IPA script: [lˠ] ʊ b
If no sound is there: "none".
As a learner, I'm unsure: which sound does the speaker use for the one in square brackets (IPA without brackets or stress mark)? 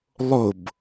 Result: lˠ